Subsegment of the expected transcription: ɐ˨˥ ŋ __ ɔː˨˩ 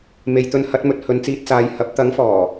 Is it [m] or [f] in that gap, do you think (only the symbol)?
f